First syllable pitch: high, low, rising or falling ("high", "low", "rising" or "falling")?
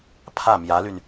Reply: falling